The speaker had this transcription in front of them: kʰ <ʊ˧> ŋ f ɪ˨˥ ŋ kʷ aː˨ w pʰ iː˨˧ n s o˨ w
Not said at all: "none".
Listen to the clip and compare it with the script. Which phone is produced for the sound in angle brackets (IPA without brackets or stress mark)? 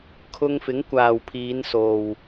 ʊ˧